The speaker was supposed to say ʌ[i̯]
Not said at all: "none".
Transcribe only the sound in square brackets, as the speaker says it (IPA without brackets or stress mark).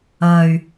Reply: y̯